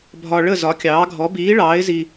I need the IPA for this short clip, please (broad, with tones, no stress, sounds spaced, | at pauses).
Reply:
bʱ ɒ˧ ɭ ə˥˨ z ɒ˨˥ kʲ ɑː˨˥ ɡʱ ɔ˨˥ b iː˨˥ ɭ ɑː˨˥ ɪ̯ z i˧